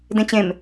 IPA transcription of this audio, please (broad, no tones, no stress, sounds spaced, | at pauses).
d ẽ t͡ɕ ẽ m